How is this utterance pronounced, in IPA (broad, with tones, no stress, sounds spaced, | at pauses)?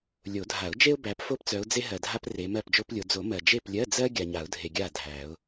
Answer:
lʲ o˨˩˦ dʱ a˨˩˦ ʊ̯ d͡ʒ e˥ ʊ̯ b æ˨˦ p f o˥ p t͡s œ˨˦ ʊ̯ d͡z e˥ ɦ ɜ˨ dʱ a˥ p r e˨˦ m ɜ˥˨ p d͡ʒ o˥ p lʲ o˨˦ d͡z o˨˩˦ m ɜ˨ d͡ʒ e˥˨ p lʲ ɜ˧˥˧ d͡z ɜ˥ ɡʲ a˨ ɲ a˨˩˦ ʊ̯ dʱ e˨ ɡʲ a˥˨ dʱ æ˨˩˦ ʊ̯